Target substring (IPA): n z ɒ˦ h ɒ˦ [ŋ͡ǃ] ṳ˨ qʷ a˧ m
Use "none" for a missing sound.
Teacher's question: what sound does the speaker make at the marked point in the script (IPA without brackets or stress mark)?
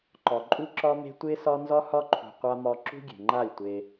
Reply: ǃʰ